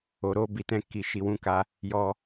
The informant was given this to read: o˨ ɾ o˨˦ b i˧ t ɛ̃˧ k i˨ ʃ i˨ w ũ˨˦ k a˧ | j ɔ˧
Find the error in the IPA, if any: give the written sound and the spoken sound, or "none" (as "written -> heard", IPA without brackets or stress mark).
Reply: none